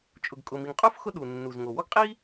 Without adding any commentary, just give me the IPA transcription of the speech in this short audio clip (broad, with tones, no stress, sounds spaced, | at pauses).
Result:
t͡ʃʼ ʊ˩ ɡ kʼ ʊ˩ m i˩ ŋ qʼ u˥ f x ʊ˥ ɗ u˩ nː u˩ z ŋ o˩ w ɔ˥ ɡ qʼ i˥